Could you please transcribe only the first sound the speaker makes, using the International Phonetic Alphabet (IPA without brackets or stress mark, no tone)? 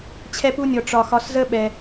t͡ɕʰ